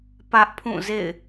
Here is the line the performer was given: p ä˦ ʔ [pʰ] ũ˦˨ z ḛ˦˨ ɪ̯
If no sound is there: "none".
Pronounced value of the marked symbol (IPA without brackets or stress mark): pʰ